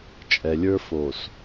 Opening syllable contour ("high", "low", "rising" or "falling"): low